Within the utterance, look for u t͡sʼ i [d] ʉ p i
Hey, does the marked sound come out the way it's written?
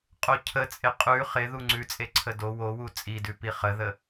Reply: yes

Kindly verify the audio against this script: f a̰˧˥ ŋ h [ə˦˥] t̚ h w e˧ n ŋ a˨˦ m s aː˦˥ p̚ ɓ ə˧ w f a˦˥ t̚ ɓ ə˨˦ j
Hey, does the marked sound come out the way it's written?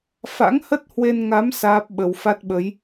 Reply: yes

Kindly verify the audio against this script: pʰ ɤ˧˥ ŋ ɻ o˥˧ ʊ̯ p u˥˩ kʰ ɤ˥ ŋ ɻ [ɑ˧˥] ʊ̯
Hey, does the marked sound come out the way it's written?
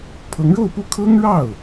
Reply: no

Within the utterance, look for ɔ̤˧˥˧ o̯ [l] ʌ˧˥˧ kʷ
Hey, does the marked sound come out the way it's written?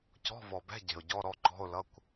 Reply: yes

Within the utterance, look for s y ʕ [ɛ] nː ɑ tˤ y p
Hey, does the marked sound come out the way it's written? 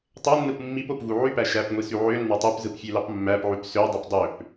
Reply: no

